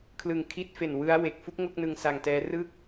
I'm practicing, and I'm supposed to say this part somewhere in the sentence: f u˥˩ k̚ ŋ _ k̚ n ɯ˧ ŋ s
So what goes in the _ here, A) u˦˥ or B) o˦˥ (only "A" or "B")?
B